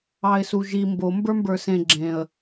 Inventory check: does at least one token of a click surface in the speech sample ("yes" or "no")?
yes